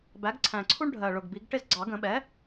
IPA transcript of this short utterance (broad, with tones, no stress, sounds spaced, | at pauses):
b æ˩˥ ɡ ǀʰ æ̃˨˩ ǀʰ u˦ ɳ ɖʱ ɜ˨˩ ɭ ʊ˨˩ ɡ b i˩˥ ɡ ʈ ɪ˦˨ z ɡ͡ǀ ɑ˨˩˦ ɡ ə̃˨˩˦ ɓ ɛ˩˥